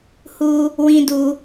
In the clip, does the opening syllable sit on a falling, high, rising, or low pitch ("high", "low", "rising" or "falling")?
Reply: high